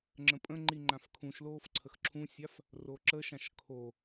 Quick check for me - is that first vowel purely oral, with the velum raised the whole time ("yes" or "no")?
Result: no